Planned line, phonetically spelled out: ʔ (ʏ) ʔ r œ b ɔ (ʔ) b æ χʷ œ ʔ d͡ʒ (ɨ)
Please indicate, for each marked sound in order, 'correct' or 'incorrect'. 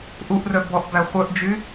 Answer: incorrect, correct, incorrect

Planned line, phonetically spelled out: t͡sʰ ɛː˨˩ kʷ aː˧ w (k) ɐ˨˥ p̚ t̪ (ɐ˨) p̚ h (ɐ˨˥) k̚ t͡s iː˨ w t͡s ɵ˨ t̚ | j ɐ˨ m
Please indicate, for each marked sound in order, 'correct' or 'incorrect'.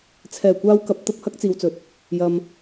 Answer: correct, incorrect, incorrect

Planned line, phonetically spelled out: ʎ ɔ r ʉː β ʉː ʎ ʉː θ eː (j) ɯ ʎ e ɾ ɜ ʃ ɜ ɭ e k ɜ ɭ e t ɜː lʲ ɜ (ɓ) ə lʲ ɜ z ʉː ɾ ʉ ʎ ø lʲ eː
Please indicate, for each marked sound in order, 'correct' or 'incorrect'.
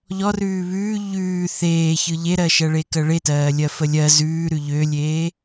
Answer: incorrect, incorrect

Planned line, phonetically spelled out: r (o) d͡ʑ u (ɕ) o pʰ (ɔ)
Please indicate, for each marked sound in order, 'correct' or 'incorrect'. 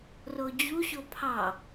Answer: correct, correct, incorrect

